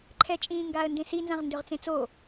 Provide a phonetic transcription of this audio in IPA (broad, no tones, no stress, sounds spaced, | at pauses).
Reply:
ǃʰ ɛ t͡ʃʼ ĩː ŋ ɡ aː ə̯ n d ẽ s i n z ã ʁ n d ʏ ʁ t͡s ẽ t͡s o